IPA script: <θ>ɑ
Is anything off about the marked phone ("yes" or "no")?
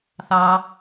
no